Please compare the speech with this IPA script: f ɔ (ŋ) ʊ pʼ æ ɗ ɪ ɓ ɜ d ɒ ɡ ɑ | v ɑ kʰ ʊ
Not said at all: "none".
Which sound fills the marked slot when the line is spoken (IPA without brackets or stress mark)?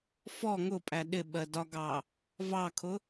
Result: ŋ